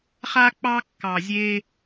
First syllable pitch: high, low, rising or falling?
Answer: high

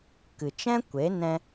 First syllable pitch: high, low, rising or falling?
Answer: low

